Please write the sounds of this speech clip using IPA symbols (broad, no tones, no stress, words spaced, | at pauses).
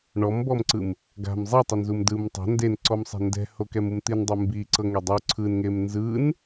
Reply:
ɳɔmbɔmǀɯm | ɡa̤m zˤitˤunzum dɯm tˤa̤ ndenǀɔmsˤɛ̤ ndɛ̤hokɛmum t̪indˤi mbiǀɤŋe dˤu ǀʰɯnŋem nzɯn